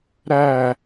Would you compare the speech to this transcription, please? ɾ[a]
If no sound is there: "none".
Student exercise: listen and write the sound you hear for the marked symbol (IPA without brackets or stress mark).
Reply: æ